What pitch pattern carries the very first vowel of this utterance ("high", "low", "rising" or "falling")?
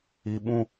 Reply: high